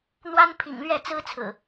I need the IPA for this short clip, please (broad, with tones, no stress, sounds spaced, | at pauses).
n̪ w a˦ n pʰ ḭ˨˩ ŋ l ɥ ɛ˥˨ t͡s ɹ̩˦ t͡sʰ ɹ̩˨˩